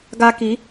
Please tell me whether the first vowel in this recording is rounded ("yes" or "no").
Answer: no